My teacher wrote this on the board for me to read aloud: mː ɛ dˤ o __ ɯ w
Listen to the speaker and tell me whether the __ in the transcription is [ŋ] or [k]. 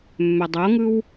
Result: ŋ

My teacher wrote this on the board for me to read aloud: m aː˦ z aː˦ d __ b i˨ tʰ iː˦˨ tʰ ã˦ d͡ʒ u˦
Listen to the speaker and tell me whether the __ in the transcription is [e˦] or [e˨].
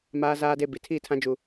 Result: e˦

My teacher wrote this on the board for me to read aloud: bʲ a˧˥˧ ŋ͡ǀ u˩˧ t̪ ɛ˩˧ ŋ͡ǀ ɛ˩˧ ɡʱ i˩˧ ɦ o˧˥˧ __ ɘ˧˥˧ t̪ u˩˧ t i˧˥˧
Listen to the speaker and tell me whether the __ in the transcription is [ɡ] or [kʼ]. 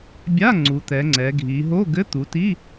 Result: ɡ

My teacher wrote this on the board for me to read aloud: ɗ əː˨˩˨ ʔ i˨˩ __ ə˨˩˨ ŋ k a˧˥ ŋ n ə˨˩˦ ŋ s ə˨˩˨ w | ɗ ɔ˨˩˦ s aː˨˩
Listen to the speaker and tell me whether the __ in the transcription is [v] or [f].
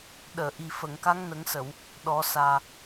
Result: f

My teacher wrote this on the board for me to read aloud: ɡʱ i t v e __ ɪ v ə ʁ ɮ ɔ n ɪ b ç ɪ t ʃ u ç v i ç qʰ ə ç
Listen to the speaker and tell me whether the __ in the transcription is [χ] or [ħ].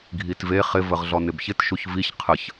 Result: χ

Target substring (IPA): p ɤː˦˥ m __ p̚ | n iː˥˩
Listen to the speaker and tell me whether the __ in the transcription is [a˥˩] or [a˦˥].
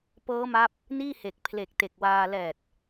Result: a˦˥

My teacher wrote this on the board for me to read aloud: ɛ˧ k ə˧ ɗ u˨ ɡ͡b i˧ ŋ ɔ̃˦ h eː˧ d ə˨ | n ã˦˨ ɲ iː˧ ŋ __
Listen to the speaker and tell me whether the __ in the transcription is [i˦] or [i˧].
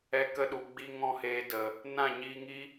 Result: i˦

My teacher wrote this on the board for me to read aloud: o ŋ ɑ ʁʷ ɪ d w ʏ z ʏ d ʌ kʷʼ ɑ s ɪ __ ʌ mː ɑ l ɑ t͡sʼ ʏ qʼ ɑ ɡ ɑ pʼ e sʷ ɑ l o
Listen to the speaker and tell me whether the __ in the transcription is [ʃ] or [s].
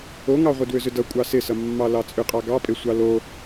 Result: s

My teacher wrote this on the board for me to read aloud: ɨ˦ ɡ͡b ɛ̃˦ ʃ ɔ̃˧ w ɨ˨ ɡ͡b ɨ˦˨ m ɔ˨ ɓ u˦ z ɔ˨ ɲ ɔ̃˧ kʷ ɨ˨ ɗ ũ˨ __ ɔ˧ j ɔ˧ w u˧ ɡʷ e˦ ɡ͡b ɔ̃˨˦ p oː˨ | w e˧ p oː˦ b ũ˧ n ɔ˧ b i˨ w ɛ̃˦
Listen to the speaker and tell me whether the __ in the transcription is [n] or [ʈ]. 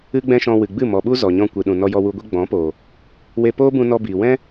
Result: n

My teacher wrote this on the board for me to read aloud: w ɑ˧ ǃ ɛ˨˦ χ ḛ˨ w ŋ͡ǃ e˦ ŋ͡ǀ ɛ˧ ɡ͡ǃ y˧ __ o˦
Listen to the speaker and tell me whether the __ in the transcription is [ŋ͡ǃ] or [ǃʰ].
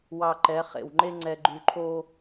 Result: ǃʰ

